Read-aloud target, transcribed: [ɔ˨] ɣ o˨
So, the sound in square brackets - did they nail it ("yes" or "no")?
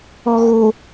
yes